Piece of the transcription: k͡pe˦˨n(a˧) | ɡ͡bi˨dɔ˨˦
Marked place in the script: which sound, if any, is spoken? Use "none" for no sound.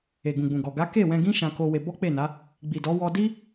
a˨˦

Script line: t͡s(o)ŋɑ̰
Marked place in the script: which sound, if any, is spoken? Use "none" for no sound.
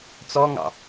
ɔ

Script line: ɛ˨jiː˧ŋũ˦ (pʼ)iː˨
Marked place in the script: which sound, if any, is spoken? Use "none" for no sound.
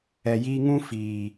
f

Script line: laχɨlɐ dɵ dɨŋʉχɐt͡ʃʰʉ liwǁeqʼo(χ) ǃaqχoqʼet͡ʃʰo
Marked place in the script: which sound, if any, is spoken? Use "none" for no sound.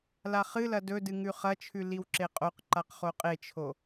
q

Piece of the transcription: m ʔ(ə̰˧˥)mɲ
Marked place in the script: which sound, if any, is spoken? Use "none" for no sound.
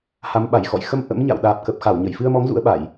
ə̰˧˥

